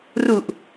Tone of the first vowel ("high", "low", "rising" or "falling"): low